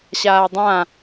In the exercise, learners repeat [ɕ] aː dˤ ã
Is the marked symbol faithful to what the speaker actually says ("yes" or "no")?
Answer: yes